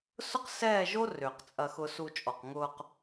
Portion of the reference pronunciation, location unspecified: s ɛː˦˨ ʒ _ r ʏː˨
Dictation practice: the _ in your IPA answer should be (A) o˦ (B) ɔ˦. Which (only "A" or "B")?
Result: A